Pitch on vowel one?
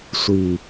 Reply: low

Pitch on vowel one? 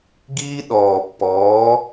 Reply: high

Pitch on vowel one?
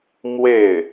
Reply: falling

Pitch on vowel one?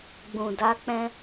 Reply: low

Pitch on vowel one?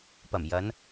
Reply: low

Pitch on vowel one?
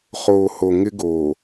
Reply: low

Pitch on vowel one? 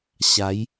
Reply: rising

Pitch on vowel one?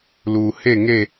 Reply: low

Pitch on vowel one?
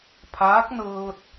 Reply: rising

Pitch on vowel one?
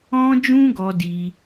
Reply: high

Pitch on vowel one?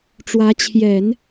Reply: rising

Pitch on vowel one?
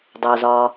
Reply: low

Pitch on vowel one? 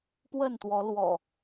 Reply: falling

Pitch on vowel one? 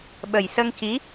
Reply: low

